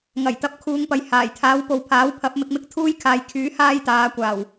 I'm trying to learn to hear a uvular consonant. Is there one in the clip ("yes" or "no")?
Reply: no